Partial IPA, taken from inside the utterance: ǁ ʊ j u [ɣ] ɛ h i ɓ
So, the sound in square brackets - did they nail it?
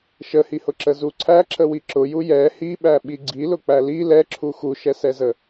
no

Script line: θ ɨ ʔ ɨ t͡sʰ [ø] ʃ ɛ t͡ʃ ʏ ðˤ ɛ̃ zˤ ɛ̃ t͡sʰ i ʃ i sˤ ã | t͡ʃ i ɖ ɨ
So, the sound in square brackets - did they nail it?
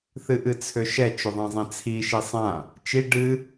yes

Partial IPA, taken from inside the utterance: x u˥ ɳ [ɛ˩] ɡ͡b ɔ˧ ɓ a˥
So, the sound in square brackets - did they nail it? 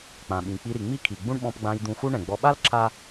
no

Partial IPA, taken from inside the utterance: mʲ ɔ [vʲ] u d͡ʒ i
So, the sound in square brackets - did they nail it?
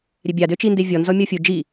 no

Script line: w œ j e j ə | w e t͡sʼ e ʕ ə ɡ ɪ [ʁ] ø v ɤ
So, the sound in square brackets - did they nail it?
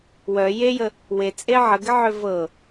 no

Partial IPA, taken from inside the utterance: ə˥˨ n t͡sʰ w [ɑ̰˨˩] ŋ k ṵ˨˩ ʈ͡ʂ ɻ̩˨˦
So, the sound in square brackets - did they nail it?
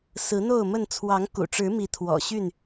no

